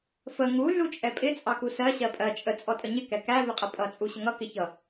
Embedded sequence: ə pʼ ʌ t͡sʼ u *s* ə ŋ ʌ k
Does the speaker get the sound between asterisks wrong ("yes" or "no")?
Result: yes